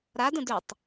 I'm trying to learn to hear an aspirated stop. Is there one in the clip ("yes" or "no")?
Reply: no